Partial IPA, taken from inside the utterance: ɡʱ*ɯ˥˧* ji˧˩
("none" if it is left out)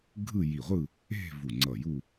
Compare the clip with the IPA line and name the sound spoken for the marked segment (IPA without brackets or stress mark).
ɯ˥˧